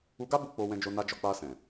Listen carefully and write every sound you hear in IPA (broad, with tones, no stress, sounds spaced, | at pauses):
u˧ ɡ a˦ b u˦ k͡p o˧ w ɛ̃˧ d͡ʒ o˧ n a˧ d͡ʒ ɔ˧ k͡p a˧ s ɛ̃˨